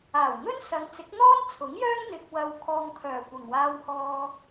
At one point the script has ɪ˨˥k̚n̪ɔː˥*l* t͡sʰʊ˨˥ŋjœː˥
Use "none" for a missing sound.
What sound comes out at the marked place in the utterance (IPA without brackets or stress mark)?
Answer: n